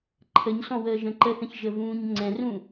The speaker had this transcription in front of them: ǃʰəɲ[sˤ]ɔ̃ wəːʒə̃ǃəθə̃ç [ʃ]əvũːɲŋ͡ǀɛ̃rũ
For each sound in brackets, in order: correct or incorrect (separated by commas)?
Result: incorrect, incorrect